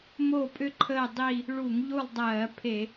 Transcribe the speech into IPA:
m o˦˨ pʼ ʏ˦ ǃʰ ə˦˨ dˤ i˦˨ | ɭ u˧˩˧ ŋ ʎ u˦˨ lˠ dˤ ɜː˧˩˧ pʰ e˧˩˧

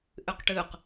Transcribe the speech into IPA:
ʔ ʏ q ʈ ʏː q

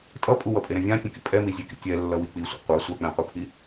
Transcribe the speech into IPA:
tʼ ʌ pʼ u w ʌ pʼ e ɾ ɛ̃ vʲ ã tʲ ũ k ḭ pʼ ɛ m i zʲ e k ḭ tʲ ɛ lː ʌ w i k͡p i sʷ ɛ̰ qʷ a sʷ a k͡p ɛ̃ qʷ ɯ pʰ i

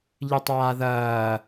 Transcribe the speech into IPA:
ʎ ɨ tˤ aː ð ɐː

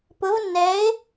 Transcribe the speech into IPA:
p ʊ˧˥ v nː ɛ˧˥ ɪ̯

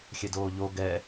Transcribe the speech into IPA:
xʲ ɛ d oː ʎ o ɡ ɛ

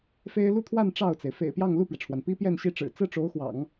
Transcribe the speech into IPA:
f e˥ ɪ̯ l u˥˧ t̪ʰ w a˥˧ n ʈ͡ʂ ɑ˥˩ ʊ̯ t͡s e˩ ɪ̯ f ḛ˨˩ ɪ̯ p j ɑ˥˧ ŋ l u˥˩ p ɥ ɛ˩ ʈ͡ʂʰ w a˩ n p i˥ p j ɛ˥˧ n ɕ i˥˩ ʈ͡ʂ ɻ̩˨˩ t͡s ɹ̩˥ ʈ͡ʂ o˧˥ ʊ̯ x w ɑ̰˨˩˦ ŋ

